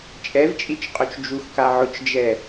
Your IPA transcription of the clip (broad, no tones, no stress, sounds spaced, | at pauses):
t͡ʃʼ ɛ v t͡ʃʼ i t͡ʃ qʼ o t͡ʃ d͡ʒ u x k a ʕ ʊ t͡ʃ d͡ʒ ɛ